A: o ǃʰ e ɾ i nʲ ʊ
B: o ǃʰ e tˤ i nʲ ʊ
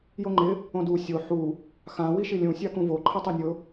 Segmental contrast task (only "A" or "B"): B